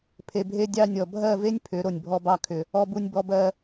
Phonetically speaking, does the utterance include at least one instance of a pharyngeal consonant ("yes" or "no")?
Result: no